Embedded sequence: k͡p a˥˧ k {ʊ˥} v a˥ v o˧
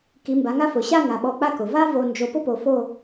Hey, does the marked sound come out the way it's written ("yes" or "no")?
no